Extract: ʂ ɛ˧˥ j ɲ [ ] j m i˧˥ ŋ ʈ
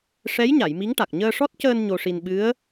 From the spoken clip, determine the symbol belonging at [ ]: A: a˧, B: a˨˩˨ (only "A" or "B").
B